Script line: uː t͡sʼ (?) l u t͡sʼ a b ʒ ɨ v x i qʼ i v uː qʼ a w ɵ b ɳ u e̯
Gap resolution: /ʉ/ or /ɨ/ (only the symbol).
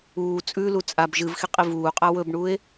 ʉ